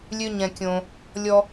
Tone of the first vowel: high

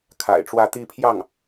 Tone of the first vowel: low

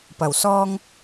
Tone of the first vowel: low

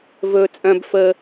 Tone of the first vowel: low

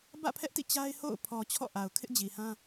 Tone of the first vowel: falling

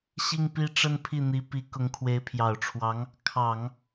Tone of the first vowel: falling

